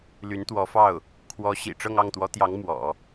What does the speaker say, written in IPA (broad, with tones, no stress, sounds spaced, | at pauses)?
l y˧˥ n t̪ w ɔ˧˥ f ɑ˥˩ ʊ̯ | kʰ w ɔ˧˥ ɕ ḭ˨˩ ʈ͡ʂ ɤ˥˧ ŋ ɑ˥˩ ŋ t̪ w ɔ˧˥ t̪ j ɑ˧˥ ŋ m w ɔ̰˨˩˦